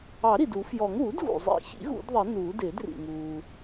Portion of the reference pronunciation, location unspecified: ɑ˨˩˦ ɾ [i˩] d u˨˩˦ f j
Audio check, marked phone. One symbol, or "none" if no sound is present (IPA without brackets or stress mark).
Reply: i˩